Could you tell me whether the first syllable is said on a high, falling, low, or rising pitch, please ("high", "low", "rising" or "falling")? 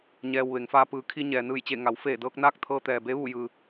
low